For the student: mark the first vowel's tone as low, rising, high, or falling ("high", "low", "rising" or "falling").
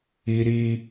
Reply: high